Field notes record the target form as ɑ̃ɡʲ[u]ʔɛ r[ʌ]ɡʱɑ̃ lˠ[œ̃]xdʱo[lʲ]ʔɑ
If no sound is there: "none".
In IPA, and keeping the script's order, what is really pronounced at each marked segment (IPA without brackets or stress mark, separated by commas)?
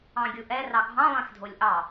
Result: u, ɑ, ɛ̃, lʲ